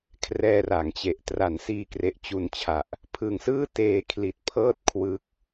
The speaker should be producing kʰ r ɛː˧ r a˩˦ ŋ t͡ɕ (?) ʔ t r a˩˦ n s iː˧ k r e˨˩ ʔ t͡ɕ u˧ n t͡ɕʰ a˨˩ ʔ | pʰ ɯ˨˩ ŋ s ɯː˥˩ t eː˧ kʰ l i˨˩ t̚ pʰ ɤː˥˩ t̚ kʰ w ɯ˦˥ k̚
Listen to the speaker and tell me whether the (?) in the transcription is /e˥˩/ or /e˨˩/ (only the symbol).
e˨˩